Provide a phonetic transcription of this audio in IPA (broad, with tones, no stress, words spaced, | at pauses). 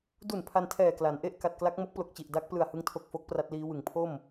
du˨˩n pʰa˧ntʰɛː˨˩ kla˩˦nʔe˥˩ʔ ka˨˩t̚kla˦˥k̚ mo˦˥k̚plo˨˩k̚t͡ɕi˨˩ʔ da˦˥k̚plɯ˨˩a̯ hɯ˦˥ŋtʰo˨˩k̚fo˦˥k̚ pra˦˥t̚liː˦˥wɯ˨˩ŋ pʰo˥˩m